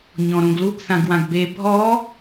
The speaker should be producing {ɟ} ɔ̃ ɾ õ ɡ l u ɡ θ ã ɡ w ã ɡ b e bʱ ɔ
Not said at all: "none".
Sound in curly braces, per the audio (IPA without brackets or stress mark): ɲ